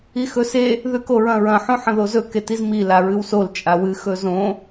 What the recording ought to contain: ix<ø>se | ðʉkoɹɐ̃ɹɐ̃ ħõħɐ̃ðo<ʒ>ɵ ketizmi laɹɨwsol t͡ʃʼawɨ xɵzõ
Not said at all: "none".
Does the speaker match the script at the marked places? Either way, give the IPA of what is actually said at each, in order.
ɵ, z

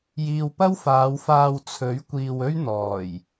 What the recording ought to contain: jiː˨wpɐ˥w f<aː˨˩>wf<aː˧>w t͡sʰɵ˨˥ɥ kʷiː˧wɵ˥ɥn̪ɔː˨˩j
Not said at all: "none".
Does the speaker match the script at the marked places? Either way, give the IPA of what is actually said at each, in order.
aː˨˧, aː˧

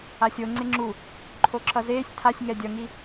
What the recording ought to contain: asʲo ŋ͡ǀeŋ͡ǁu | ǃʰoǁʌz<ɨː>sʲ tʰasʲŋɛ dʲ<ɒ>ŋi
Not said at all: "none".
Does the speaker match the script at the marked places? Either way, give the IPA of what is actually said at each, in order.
eː, ʌ

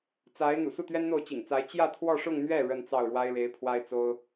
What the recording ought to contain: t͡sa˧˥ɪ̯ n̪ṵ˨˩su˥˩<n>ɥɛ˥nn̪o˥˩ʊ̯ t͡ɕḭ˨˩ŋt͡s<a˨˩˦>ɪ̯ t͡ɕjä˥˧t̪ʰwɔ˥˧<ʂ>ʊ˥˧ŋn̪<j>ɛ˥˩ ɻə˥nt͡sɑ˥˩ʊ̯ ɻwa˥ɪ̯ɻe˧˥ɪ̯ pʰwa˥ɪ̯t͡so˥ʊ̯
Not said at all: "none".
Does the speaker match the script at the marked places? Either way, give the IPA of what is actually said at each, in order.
t̪, a˧˥, ʂ, ɥ

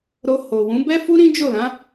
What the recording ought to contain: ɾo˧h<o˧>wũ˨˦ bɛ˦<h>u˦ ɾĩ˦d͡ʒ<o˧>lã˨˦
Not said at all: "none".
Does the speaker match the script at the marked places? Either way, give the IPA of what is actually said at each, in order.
o˨, f, o˦˨

